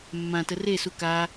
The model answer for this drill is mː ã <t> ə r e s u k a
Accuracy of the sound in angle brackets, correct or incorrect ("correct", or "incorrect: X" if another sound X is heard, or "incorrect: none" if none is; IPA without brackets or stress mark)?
correct